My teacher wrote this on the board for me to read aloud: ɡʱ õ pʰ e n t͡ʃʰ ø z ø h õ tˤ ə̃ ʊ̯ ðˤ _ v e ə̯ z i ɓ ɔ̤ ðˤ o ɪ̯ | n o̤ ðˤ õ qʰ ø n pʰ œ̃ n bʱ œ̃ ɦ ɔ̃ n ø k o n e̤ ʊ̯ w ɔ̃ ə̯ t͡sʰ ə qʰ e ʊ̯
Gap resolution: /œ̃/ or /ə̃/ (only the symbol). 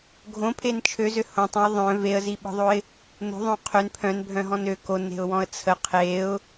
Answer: œ̃